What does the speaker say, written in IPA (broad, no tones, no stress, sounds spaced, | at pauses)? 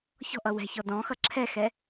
ç ɔ̤ ʔ ʌ w ɛ̤ ç ɔ d ɔ̃ x ʌ ǁʰ ɛ x ɛ